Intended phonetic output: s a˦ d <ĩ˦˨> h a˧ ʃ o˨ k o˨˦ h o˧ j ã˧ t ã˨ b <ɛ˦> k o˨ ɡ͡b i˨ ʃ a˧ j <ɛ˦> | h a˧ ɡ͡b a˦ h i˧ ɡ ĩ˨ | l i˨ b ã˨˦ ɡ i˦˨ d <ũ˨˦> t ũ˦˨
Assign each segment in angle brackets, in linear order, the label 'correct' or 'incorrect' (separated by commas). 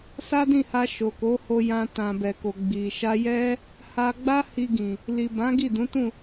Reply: correct, incorrect, correct, correct